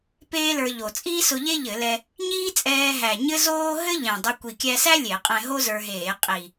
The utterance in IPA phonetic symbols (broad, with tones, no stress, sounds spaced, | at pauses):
p eː˥ l ə˞˧ ʎ o˨˩ t͡sʼ iː˥ s ʊ˧ ʎ e˥ ʎ ɘ˧˩˧ l ɛ˧ | ɲ iː˥ t͡sʼ ɛː˧ ɦ æ˨˩ ɲ ɘ˥ z oː˥ ɦ ɘ˥ ʎ ɛ̃˨˩ dˤ ɘ˧ kʷ i˨˩ kʲ æ˧ s æ˥ lʲ e˧˩˧ qʼ ɛ̃˧ ɦ o˥ z ə˞˧ ɦ eː˧˩˧ qʼ i˨˩